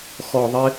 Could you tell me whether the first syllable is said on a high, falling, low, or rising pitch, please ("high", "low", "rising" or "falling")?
low